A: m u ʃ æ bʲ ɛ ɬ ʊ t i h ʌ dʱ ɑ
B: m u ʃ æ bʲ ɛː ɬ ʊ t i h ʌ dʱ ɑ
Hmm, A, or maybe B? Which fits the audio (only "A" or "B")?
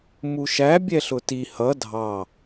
A